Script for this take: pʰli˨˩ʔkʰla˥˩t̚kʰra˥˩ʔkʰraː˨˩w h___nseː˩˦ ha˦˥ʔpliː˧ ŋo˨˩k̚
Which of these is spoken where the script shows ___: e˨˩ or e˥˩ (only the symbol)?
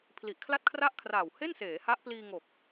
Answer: e˥˩